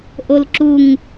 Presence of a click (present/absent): present